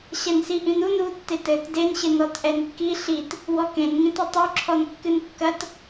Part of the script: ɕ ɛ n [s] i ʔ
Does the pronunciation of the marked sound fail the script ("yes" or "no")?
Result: no